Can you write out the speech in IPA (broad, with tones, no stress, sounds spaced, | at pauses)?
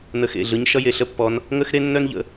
n ə˨˦ x ḛ˩˧˩ ɮ ɯ˨˦ ɲ ʃ ʌ˦ j e˩˧˩ ɬ ə˦ pː ɔ˨˦ n | ŋ ə˦ x ɾ e˦ nː œ˦ n ʎ ə̰˨˦